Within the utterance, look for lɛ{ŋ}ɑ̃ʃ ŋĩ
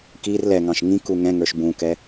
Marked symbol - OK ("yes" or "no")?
yes